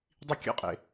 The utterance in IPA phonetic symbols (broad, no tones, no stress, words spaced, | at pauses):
dˤikʲə̰qʼḛ